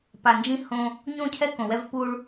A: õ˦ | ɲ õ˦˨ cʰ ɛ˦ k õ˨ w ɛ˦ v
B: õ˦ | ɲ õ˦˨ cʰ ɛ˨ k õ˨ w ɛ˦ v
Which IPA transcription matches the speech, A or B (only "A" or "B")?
A